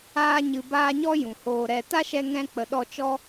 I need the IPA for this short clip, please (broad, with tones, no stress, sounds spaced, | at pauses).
aː˧ ɲ ɨ˨ b aː˧ ɲ ɔ˦ j ũ˨ h oː˧ ɾ ɛ˧ t a˦ ʃ ɛ˧ ŋ ɛ̃˧ k͡p ə˧ ɗ ɔ˦ t͡ʃ ɔ˧